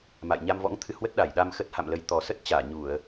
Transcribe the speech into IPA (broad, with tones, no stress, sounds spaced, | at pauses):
m a̰˧˨ j ɲ a˧ m v ɔ̰˧˥ ŋ t̪ʰ ɨ˧ h w ə˦˥ t̚ ɗ a˧˩ j ɗ a˧ m x ə˦˥ t̚ h a̰˧˨ m l ə˨˦ j t̪ ɔ˨˩ s ə˦˥ t̚ t͡ɕ aː˧˩ ɲ u˧˩˨ ə̯